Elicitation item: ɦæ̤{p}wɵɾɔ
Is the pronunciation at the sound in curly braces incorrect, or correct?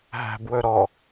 incorrect